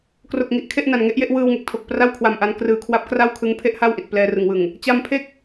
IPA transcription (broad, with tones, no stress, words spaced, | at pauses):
kro˨˩k̚ŋi˨˩ʔ kʰe˥˩ʔna˨˩nŋe˦˥ʔje˥˩ʔ wɯː˧wŋe˨˩k̚tʰo˨˩k̚ pra˥˩wkʰwa˨˩mʔa˧n krɯː˨˩kʰwa˦˥p̚ kra˥˩wkʰɯ˦˥ŋ pʰe˥˩ʔha˥˩wʔi˨˩t̚ plɛː˧rɯ˨˩ŋwɯ˨˩ŋ | t͡ɕa˧mpʰe˥˩k̚